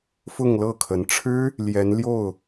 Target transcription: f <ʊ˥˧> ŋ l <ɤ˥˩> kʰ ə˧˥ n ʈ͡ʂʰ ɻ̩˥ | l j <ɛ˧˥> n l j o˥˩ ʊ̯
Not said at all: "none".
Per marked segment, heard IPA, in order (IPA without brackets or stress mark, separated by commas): ʊ˥˧, ɤ˥˩, ɛ˧˥